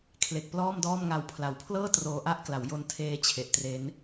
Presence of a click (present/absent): absent